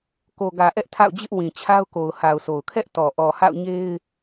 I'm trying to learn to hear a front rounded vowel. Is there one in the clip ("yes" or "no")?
no